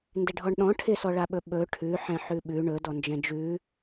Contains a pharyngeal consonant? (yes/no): yes